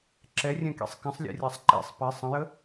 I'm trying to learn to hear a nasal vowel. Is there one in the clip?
yes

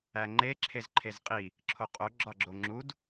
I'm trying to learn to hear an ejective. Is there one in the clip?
yes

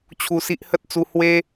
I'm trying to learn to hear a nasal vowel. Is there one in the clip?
no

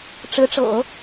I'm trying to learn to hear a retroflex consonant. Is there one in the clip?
yes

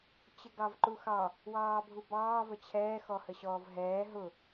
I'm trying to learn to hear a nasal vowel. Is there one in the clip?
no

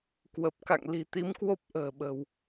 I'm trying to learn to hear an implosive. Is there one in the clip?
yes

